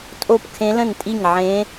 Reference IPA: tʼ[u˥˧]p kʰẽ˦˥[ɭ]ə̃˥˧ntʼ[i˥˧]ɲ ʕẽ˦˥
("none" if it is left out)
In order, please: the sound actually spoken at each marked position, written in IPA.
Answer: o˥˧, l, i˥˧

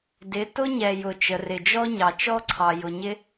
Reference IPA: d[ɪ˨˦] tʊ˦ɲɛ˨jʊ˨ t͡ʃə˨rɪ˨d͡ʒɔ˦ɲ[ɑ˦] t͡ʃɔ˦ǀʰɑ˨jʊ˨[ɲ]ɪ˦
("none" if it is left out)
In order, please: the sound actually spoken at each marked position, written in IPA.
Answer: ɪ˨˦, ɑ˨, ɲ

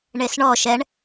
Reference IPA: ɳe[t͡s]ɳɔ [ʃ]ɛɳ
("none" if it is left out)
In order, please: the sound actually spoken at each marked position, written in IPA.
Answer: s, ʃ

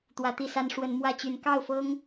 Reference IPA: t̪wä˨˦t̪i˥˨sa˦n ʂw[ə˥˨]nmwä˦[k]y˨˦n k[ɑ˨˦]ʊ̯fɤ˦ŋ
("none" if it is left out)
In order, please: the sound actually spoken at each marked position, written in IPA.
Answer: ə˨˦, t͡ɕ, ɑ˥˨

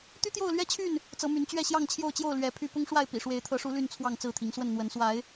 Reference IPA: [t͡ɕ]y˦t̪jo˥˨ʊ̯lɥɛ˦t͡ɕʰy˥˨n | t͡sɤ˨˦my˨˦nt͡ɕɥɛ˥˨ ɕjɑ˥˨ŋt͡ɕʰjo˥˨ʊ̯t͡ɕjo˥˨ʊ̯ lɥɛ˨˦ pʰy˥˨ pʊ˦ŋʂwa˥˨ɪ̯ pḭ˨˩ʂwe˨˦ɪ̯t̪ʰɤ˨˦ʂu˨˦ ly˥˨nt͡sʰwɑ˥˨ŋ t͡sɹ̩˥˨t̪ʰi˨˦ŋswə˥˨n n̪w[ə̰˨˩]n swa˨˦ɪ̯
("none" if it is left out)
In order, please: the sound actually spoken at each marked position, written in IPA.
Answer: t̪, ə˨˦

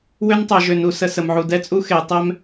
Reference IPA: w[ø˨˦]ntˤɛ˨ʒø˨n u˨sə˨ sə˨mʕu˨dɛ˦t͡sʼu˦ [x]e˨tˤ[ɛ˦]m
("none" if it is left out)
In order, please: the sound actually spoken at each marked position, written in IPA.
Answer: ø˦, x, ɛ˦

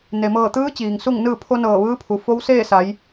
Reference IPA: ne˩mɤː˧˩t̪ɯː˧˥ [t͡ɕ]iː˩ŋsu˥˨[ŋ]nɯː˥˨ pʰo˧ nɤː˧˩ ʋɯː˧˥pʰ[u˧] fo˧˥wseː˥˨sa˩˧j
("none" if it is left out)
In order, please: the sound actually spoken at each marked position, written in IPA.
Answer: t͡ɕ, ŋ, u˩˧

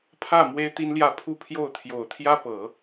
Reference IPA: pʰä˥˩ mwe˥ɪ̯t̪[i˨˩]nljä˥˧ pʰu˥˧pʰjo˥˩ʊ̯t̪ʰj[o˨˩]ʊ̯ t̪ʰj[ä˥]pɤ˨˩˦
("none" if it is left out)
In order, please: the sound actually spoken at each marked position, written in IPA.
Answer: i˥, o˨˩, ä˥

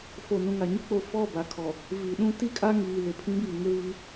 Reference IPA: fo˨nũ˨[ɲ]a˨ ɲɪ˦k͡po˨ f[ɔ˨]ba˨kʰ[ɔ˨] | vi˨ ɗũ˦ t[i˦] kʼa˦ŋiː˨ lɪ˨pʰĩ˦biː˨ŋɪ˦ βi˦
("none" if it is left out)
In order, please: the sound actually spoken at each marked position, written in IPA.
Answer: ŋ, ɔ˦˨, ɔ˨, i˦

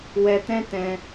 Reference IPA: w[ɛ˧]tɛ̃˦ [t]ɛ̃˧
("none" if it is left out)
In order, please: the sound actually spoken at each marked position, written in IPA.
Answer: ɛ˧, t

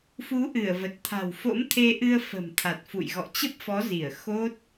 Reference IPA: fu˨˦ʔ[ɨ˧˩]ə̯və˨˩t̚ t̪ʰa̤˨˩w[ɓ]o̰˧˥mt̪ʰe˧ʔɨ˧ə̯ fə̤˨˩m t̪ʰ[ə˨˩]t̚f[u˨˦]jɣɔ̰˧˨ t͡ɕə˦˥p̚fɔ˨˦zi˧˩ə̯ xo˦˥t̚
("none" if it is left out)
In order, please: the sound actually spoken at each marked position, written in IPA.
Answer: ɨ˧˩, f, a˨˩, ṵ˧˨

